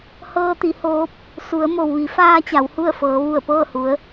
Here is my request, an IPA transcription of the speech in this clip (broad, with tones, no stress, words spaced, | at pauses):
hɤː˧t̪i˩˧ hoː˧˥p̚ | su˩˧ə̯mo˩wʋi˩˧ faː˧ t͡ɕa˩˧whu˥˨ə̯fɤː˩˧ ʋu˧˩ə̯pɤː˥˨hu˩˧ə̯